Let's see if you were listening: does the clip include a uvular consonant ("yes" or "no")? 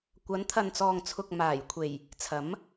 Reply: no